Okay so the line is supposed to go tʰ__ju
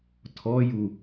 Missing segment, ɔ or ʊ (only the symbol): ɔ